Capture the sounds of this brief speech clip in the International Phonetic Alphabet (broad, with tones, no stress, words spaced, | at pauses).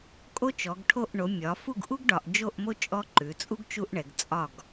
kʼo˦t͡ʃɔ˩˧ɡʈʰo˦˨ʔ ɳo˩˧mʲɒ˩˧fu˦˨ɡʔu˦ɡ ɖɒ˩˧ʔ d͡ʒo˦˨ʔmo˦ t͡ʃʼɔ˦ ǃʉ˩˧t͡sʼu˦ɡ t͡ʃu˦ʔɳɛ˩˧ɡ t͡sʼɒ˦˨ɡ